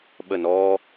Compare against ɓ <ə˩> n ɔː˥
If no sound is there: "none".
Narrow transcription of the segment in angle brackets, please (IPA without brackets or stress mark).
ə˥˩